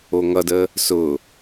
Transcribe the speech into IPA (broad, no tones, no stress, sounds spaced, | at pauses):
o ŋ ʌ d ə | s ʊ